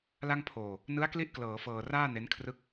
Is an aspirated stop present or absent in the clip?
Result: present